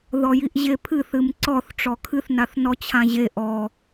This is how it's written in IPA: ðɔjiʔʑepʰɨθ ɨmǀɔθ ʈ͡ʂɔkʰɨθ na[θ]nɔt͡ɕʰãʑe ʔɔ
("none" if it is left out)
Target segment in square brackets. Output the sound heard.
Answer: θ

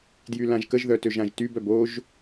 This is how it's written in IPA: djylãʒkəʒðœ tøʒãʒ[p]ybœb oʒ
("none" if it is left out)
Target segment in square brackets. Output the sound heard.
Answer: t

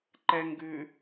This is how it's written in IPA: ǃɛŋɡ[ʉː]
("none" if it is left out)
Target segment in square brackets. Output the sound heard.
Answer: ʉː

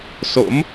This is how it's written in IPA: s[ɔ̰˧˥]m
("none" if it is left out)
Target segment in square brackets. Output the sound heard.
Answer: o̰˧˥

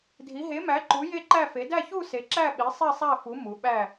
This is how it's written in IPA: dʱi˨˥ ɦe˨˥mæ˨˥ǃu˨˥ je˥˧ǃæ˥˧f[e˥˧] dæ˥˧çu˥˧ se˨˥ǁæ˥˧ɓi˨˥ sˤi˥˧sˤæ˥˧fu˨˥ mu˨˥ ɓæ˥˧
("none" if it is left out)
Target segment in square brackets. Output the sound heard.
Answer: e˨˥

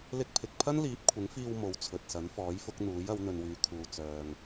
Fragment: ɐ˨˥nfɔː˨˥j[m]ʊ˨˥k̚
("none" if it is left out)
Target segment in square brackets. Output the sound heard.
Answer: f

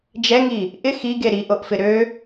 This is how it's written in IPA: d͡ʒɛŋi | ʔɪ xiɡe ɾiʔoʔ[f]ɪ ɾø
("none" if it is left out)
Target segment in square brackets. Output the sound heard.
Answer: f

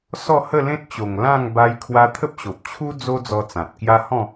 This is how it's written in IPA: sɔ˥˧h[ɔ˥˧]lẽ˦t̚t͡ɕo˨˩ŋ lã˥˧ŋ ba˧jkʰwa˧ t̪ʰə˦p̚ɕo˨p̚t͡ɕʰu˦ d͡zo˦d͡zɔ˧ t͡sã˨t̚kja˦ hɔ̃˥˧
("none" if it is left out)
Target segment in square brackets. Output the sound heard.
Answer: ə˥˧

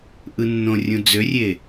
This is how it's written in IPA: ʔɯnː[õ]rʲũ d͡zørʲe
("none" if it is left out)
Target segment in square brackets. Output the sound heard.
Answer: õ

